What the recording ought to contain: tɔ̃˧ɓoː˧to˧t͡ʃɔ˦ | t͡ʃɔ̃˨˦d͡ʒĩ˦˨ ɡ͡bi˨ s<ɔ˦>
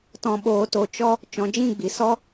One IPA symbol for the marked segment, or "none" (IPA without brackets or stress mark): ɔ˦